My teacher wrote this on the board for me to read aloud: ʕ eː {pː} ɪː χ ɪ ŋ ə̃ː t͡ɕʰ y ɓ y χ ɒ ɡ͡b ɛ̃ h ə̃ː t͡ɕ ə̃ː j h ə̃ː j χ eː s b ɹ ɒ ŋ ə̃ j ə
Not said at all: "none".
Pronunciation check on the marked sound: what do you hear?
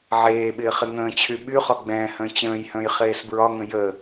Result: ɓ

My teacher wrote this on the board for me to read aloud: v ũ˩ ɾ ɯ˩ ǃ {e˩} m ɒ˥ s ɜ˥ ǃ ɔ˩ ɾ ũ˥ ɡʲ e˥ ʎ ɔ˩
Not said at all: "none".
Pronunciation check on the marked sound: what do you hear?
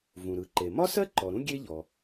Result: e˩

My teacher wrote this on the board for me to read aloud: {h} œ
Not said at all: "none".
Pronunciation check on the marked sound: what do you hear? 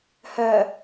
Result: h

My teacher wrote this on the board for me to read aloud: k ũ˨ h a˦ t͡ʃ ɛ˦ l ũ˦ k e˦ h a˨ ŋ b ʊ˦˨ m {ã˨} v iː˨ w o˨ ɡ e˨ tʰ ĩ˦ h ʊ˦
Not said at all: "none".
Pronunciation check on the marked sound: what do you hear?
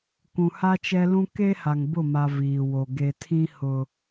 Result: a˨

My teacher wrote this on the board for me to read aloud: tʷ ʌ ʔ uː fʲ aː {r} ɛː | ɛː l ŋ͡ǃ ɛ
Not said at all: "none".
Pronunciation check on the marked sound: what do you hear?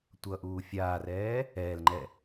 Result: r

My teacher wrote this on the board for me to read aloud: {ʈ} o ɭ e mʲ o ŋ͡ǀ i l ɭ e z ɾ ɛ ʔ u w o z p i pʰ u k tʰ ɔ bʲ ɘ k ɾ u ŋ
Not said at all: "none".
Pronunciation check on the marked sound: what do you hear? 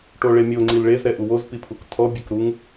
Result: ʈ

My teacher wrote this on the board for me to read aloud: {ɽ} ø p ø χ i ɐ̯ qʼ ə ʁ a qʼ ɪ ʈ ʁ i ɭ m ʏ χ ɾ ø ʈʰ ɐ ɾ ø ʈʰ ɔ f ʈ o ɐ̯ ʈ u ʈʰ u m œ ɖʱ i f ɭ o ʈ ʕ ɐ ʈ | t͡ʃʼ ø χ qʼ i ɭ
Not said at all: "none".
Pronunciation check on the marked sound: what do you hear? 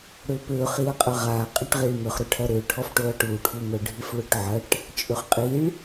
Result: ɽ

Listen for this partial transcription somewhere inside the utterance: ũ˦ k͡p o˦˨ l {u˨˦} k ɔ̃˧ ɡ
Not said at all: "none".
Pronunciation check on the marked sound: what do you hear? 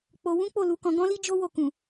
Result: u˨˦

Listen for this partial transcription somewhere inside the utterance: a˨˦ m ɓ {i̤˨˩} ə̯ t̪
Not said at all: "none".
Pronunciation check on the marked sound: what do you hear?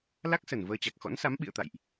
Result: ḭ˧˨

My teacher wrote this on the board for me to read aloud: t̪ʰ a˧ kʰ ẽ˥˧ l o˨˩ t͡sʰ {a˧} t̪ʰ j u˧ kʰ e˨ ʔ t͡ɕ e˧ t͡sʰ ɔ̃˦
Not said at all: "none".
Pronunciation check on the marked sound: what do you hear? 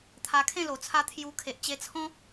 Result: a˧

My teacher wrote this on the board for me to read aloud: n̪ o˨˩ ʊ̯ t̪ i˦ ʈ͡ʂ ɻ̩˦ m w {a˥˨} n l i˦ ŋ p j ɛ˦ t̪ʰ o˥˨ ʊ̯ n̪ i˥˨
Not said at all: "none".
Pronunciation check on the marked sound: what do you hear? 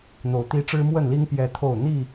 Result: ə˥˨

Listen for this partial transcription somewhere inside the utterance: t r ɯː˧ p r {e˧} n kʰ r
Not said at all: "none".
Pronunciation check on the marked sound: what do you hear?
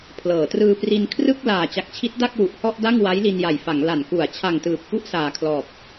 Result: i˧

